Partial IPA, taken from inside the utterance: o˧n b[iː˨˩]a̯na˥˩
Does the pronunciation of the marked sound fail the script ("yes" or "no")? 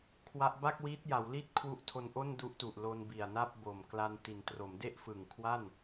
yes